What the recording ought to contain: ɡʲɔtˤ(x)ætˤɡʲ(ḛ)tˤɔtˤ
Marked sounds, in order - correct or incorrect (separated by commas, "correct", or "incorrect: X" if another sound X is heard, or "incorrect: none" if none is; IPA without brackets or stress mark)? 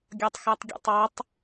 correct, correct